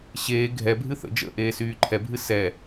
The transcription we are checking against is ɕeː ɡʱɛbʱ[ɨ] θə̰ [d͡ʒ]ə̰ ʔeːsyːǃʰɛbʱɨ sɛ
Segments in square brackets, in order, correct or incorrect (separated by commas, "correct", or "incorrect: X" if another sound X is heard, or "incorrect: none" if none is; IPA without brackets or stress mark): correct, correct